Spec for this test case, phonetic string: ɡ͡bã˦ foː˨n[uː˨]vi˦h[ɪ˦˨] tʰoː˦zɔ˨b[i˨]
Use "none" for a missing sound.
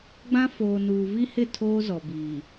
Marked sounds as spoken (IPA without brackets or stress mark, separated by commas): uː˨, ɪ˦˨, iː˨